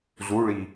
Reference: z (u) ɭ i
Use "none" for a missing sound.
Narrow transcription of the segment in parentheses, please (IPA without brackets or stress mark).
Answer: u